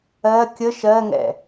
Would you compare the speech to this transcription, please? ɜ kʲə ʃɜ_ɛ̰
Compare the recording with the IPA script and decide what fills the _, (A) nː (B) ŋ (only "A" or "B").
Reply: B